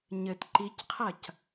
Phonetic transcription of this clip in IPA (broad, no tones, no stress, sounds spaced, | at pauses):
ɲ ɘ t ǃ i c qʰ ɐ c